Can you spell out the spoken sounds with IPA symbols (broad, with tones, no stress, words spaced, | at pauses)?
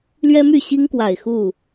lɥɛ˦my˥˨ɕi˦ŋkwa˨˩ɪ̯ xu˥˨